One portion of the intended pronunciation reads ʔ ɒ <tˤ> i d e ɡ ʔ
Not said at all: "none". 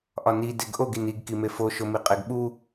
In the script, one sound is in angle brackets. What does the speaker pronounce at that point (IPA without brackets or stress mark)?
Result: n